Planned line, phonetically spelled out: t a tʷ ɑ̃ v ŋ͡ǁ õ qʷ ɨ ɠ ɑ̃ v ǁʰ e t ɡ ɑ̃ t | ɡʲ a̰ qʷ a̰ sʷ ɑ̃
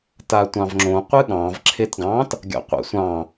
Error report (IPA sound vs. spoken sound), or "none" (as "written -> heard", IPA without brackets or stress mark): none